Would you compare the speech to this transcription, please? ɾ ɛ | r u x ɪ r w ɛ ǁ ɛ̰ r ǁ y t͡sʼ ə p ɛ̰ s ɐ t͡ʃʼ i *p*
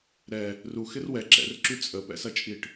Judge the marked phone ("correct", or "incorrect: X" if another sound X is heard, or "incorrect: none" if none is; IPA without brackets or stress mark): incorrect: ʈ